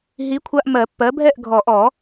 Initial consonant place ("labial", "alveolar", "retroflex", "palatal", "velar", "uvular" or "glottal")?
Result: glottal